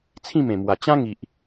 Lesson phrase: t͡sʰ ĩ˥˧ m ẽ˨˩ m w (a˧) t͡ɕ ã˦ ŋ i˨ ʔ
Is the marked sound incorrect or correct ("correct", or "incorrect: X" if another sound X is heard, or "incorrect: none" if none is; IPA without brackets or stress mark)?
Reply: incorrect: a˨˩